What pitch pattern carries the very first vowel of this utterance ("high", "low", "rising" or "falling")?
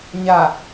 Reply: low